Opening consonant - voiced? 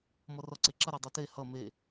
yes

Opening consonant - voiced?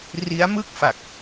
yes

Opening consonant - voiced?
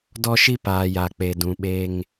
yes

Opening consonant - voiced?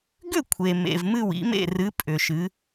yes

